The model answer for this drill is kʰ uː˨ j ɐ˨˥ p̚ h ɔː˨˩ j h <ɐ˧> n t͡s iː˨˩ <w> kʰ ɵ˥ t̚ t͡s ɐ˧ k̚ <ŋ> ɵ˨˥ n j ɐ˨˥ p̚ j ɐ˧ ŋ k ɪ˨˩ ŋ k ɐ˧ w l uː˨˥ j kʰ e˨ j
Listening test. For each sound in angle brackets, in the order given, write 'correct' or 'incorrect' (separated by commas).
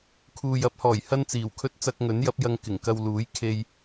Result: incorrect, correct, correct